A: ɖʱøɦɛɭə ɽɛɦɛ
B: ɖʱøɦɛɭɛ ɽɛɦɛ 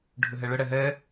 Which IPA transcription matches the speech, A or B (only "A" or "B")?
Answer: A